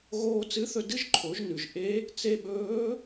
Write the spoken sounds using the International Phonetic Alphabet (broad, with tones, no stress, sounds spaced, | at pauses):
ɣ oː˧ t͡s ɨ˧˥ θ ɵ˧ d ɨ˥ ʒ ǃʰ o˩˧ ʒ n ʉ˩ ʒ ʔ e˧˥ | t͡s e˧ ɓ ɵː˧˥